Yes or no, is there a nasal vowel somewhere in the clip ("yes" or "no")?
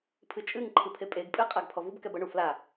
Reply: no